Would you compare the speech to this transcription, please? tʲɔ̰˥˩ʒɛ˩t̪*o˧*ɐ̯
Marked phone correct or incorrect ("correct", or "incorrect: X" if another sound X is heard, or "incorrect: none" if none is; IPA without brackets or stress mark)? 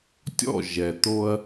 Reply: correct